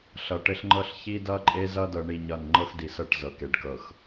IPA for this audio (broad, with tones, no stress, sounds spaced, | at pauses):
ɬ ʌ˨ ʈ ɘ˦ ɬ ŋ͡ǃ ɤ˦ ɬ ç i˦ d ʌ˦ ǃʼ e˦ z ʌ˦ d ɤ˦ ɳ i˦ ɲ ʌ˦˨ n ŋ͡ǃ ɤ˦ x d i˨ s ɤ˦˨ ʈ z ɤ˨ k e˨˦ ɖ k ɤ˨ x